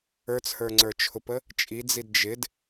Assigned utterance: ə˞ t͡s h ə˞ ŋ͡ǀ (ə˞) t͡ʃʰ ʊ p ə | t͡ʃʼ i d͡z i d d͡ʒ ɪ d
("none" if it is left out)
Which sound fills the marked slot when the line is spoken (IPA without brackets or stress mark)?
ə˞